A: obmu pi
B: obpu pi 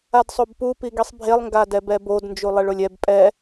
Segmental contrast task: B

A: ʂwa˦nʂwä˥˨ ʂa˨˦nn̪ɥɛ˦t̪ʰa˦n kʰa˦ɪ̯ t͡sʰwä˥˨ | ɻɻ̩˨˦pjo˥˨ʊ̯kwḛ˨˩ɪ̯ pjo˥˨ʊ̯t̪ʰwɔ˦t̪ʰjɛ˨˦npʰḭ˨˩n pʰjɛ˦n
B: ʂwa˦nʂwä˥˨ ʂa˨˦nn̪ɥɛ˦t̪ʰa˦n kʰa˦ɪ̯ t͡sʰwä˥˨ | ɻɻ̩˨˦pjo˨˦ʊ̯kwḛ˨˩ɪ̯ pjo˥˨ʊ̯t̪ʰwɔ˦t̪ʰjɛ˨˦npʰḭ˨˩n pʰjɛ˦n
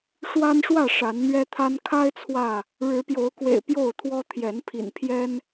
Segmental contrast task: B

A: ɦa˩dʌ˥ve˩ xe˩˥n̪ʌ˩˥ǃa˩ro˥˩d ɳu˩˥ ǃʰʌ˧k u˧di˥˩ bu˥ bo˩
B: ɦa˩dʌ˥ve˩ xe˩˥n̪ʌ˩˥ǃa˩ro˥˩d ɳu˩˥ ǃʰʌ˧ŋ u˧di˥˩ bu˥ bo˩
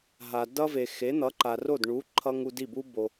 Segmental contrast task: B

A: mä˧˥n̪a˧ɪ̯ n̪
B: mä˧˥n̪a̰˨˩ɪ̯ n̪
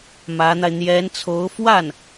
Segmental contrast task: A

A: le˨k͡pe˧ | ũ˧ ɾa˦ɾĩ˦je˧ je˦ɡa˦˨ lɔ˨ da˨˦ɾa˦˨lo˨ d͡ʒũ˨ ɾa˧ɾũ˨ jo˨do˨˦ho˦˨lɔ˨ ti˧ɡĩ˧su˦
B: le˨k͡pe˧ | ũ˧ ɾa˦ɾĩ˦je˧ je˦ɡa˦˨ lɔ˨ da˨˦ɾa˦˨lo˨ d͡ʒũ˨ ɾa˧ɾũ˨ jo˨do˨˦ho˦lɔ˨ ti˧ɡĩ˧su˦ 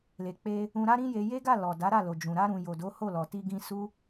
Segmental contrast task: A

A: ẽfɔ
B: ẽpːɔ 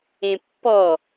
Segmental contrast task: B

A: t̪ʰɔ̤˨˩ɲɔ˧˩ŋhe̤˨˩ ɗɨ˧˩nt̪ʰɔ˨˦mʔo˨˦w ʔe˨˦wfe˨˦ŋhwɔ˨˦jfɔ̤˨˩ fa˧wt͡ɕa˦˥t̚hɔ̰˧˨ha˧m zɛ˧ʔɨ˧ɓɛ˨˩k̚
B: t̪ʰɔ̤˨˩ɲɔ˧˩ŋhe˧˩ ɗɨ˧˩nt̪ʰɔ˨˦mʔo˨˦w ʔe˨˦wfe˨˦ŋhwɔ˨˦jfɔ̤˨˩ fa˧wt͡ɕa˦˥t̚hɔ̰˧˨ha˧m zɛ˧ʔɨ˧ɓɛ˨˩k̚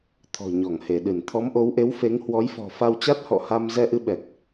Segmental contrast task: B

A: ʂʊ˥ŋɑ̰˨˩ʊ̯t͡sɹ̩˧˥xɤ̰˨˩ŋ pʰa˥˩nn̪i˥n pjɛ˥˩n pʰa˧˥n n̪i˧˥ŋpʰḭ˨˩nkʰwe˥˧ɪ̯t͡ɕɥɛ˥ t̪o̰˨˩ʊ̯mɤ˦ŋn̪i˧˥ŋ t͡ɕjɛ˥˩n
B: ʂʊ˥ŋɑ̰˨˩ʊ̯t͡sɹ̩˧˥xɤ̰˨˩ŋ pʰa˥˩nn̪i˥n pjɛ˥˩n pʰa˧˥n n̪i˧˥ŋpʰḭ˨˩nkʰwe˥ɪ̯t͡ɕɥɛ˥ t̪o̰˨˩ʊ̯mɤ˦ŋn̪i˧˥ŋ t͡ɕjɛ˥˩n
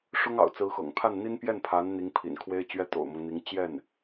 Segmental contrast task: B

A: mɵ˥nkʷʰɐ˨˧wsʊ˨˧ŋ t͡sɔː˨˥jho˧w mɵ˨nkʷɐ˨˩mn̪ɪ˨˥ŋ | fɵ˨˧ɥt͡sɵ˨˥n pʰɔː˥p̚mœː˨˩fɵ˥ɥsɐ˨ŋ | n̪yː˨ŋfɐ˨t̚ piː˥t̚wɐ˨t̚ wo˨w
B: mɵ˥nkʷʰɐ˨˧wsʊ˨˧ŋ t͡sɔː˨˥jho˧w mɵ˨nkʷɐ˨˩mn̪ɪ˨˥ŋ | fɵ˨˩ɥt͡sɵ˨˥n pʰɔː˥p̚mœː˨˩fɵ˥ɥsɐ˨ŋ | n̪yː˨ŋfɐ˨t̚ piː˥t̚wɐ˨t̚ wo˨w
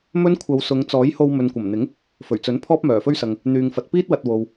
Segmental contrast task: B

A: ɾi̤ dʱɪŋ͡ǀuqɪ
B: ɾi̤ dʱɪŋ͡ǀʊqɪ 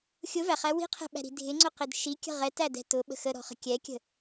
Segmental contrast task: B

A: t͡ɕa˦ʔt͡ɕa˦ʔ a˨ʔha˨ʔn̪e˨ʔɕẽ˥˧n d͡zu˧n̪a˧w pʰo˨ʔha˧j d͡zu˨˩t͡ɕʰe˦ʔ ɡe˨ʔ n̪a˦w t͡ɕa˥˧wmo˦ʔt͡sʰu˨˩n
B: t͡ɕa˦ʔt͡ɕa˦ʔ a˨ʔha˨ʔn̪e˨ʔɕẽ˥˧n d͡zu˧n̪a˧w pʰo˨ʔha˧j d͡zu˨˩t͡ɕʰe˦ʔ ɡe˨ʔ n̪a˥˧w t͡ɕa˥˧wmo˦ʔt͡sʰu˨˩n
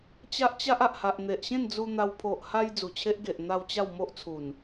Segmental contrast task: B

